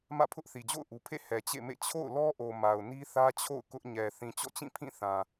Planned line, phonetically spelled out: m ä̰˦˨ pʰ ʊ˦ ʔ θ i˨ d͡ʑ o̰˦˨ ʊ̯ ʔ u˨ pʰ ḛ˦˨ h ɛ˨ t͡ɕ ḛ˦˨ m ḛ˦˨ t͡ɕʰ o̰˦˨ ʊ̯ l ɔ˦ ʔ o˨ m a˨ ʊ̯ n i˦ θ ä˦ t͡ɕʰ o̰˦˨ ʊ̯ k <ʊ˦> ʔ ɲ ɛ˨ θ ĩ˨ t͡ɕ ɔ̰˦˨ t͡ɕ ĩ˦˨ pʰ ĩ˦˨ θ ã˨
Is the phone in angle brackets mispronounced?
no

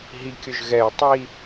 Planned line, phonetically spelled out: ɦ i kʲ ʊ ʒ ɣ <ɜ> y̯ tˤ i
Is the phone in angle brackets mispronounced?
yes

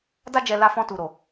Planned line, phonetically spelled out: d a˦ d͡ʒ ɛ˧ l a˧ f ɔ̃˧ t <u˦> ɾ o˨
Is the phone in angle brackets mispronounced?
yes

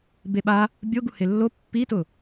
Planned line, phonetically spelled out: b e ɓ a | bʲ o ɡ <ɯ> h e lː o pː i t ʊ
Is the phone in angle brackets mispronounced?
yes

